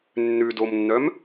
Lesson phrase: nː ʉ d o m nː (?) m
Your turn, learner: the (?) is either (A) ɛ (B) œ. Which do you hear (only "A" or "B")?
B